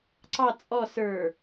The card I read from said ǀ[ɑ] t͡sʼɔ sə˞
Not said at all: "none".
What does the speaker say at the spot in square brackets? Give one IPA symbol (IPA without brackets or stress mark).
ɑ